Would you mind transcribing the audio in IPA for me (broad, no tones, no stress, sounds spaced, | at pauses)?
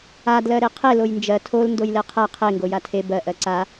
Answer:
a d l ɜ ɾ e qʰ e l o j n d͡ʒ ɜ tʰ o l n d o j l e qʰ ɜ qʰ e ŋ ɡ o j a tʰ e b ɜ ʔ ɜ ǀ a